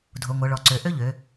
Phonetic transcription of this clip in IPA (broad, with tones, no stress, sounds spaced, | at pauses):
dʱ o˩˧ ŋʷ ɤ˩˧ ɭ ɔ˩˧ ǀ ø˩˧ ʔ ø˥ ʎ ø˩˧